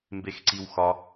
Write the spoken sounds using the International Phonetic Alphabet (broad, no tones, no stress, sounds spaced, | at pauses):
m b e x ǀ i w x ɒ